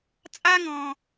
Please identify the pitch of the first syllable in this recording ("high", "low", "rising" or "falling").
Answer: high